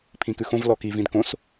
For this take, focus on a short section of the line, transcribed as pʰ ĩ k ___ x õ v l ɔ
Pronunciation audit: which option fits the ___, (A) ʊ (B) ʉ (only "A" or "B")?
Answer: B